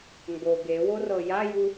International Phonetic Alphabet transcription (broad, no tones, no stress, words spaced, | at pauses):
ŋɡo ɡe worɤjaju